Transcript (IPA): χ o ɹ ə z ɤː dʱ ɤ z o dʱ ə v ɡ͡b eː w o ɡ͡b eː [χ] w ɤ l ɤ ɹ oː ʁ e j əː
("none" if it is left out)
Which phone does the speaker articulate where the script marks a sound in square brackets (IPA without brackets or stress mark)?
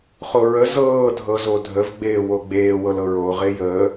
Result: none